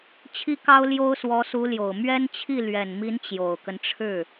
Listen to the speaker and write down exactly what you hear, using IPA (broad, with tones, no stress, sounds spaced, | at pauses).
t͡ɕʰ i˥ k ɑ˥ ʊ̯ l j o˥ ʊ̯ s w ɔ˧˥ s u˧˥ l j o˨˩ ʊ̯ m ɥ ɛ˥ n t͡ɕʰ i˥˩ l ɥ ɛ˨˩ n m i˧˥ n t͡ɕ j o˨˩ ʊ̯ k ə˦ n ʈ͡ʂʰ ɻ̩˥˩